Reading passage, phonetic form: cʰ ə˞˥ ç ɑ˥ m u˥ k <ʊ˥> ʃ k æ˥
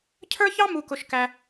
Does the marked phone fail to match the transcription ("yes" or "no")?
no